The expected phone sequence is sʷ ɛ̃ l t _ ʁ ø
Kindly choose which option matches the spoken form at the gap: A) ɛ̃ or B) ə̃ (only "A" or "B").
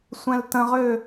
B